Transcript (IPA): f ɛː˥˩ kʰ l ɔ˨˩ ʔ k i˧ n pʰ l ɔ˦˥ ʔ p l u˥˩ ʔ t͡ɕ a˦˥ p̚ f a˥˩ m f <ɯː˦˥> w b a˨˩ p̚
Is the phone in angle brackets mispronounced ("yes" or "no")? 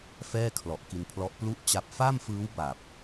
no